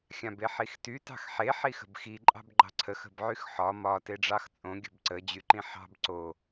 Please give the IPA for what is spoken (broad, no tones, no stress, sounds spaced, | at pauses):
xʲ ã b e ħ i x t y t ɑ̤ x ħ e ħ i x ə̤ b x i ǃʼ ɑ̤ b ɡ͡ǃ ɑ̤ ǀʰ ə x ə̤ b ʕ y x ħ ɒ m ɒ t e ɖ͡ʐ ɑ x t͡sʼ õ ɡʲ ə̤ b ǀ ə d͡ʑ y ǃ ĩ ħ ɑ̤ b ǀ o